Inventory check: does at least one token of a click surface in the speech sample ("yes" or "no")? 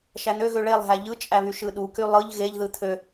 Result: no